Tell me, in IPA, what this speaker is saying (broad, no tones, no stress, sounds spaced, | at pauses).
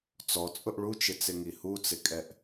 t͡s ɔ t͡sʼ ʊ ʔ ɭ u t͡ʃ ɪ t͡s ɪ ŋ i h u t͡s ɪ kʼ ɛ ʔ